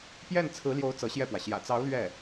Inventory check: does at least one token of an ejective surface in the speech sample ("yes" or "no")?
no